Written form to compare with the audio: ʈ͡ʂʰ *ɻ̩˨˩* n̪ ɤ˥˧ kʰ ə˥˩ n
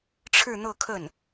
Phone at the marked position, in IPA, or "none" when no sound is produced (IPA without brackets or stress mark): ɻ̩˥˧